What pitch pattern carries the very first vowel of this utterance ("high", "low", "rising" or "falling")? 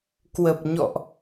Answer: low